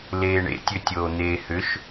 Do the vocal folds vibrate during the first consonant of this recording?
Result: yes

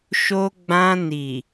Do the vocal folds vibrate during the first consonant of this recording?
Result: no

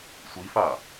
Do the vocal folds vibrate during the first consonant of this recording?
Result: no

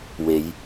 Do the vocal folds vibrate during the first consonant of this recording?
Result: yes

